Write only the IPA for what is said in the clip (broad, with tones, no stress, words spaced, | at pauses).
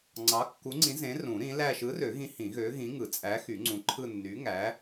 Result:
ŋ͡ǀɑ˨˥kːu˨˥ŋ͡ǀĩ˨˥ zẽ˨˥rũ˨˩˦ ɾĩ˨˥læ˥˧ ʃɯ˨˥rø˨˩˦ɣĩ˨˥ hĩ˨˩˦ɣø˨˥ɣĩ˨˥ŋɯ˨˩˦ t͡sʼæ˨˥xy˨˩˦ ŋ͡ǀũ˨˥ǃʰɯ˥˧ nːy˨˥ ŋæ˨˥